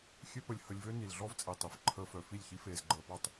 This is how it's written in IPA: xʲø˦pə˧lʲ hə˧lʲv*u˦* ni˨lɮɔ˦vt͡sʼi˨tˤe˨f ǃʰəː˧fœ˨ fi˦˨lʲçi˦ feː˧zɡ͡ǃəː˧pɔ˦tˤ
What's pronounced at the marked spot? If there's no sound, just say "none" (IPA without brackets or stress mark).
ø˦